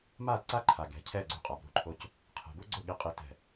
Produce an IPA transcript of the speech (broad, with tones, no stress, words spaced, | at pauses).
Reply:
ma˦˨dǀa˦ ǃʰa˨ɡɛ̤˨˦cʰɛ˦˨ ɡ͡ǀṳ˦qʼa˨˦bɾṳ˦ǃʰo˦c | qʰɛ̤˨bu˦ɡ͡ǀʊ˦˨ ɠi˦qʼi˦tɛ̤˦˨